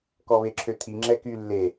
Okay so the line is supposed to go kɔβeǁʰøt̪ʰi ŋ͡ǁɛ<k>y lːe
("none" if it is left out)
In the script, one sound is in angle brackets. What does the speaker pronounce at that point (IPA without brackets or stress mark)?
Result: k